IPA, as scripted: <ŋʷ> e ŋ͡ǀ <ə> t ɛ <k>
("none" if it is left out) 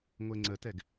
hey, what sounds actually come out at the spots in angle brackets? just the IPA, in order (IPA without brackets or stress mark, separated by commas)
ŋʷ, ə, ɡ